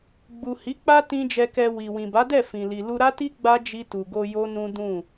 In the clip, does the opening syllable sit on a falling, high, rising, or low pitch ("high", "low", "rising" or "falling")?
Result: low